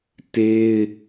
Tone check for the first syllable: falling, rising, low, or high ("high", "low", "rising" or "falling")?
high